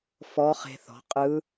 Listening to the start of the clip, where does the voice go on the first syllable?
rising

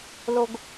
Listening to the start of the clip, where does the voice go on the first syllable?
low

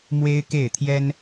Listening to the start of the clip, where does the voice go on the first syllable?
high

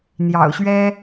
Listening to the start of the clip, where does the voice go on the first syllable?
low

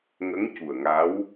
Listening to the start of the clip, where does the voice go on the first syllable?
rising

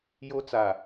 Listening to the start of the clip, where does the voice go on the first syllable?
high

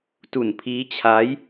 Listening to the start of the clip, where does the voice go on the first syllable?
low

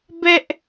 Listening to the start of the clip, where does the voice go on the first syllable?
high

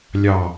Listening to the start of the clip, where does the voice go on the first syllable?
low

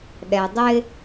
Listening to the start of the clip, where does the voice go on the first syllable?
low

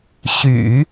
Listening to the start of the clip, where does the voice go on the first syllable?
low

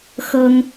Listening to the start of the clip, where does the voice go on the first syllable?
high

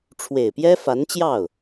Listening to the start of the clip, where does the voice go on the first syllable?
low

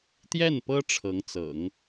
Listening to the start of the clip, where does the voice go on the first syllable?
falling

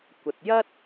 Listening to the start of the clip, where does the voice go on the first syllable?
low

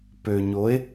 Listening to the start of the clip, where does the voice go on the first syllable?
low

